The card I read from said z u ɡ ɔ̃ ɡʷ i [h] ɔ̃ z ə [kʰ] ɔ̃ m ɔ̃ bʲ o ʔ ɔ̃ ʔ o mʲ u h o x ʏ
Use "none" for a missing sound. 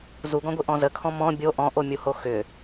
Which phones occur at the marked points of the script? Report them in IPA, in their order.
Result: ʔ, kʰ

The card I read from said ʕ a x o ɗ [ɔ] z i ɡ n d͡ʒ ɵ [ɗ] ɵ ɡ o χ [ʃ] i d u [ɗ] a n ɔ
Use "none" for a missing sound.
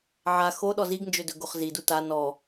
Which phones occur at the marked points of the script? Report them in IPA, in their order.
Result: ɔ, d, z, t

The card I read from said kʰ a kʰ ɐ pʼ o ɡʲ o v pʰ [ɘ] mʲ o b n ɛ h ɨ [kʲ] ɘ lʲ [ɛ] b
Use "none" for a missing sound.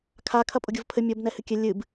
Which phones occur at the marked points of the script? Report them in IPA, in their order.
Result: ɘ, kʲ, ɨ

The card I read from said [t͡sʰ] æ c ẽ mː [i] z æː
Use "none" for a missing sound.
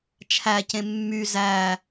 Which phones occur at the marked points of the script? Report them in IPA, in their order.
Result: t͡ʃʰ, y

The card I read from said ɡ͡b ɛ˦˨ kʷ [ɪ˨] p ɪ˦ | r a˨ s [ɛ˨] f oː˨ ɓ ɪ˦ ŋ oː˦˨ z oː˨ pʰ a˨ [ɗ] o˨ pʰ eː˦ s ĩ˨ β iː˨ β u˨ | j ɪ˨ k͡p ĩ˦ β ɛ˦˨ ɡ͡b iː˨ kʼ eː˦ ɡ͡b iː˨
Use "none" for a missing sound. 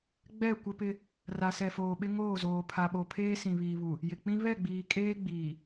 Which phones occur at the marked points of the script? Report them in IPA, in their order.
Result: ɪ˦, ɛ˨, ɓ

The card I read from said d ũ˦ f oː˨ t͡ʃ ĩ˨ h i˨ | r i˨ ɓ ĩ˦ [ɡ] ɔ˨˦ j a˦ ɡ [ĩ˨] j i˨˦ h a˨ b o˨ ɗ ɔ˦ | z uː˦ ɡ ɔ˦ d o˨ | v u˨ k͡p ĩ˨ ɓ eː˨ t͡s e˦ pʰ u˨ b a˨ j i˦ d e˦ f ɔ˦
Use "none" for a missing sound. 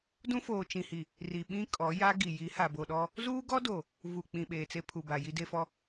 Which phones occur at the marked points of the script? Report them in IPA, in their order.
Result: kʼ, i˨

